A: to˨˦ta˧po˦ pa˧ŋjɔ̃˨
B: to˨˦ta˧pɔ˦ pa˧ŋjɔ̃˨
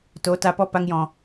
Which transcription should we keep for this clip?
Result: B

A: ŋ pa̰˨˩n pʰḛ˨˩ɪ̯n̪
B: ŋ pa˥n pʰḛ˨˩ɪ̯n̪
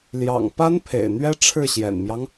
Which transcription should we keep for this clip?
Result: B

